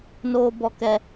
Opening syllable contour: high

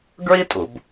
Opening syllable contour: high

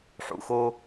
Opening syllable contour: low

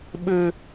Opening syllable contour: high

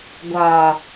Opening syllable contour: low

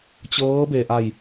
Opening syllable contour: rising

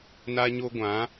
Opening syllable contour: high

